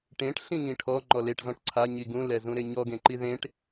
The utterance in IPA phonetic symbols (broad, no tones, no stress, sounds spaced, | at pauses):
ʈ ẽ ʈ ɬ ĩ ŋ ĩ ʈʰ ɔ ŋ͡ǃ ɔ l e ʈ z ɔ̃ ʈ ǀʰ a ɲ i ɡ ũ l ɛ z ũ ɾ e ɲ ɔ ɡ ẽ ǃ i ð ẽ ʈ